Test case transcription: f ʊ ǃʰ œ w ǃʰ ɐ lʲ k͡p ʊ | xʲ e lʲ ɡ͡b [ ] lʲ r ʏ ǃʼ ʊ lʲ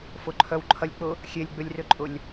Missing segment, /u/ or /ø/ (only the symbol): ø